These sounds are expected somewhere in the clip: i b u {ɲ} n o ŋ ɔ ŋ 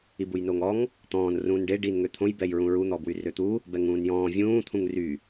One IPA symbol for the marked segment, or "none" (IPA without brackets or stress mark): j